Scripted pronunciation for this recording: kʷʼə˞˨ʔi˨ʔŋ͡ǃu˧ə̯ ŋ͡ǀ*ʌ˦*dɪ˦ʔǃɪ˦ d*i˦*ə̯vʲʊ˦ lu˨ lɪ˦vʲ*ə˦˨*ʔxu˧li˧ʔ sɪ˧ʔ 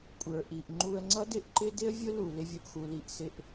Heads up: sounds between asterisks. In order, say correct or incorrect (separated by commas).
correct, incorrect, incorrect